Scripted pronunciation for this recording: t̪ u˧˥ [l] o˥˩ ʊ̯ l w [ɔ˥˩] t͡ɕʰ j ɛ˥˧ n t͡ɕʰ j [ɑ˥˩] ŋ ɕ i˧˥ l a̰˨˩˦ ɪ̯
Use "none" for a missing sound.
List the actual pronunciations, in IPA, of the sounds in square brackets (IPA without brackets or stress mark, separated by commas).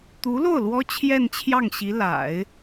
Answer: l, ɔ˥, ɑ˥˩